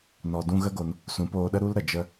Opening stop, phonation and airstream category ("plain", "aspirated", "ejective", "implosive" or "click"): plain